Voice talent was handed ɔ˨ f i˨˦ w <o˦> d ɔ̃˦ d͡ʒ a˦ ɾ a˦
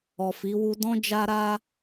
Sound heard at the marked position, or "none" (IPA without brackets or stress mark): u˦